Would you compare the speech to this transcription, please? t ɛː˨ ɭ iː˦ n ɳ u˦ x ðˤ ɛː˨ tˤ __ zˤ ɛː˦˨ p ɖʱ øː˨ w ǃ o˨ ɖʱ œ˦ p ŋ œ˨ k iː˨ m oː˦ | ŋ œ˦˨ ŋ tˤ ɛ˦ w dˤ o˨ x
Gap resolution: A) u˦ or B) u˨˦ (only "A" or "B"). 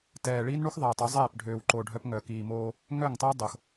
B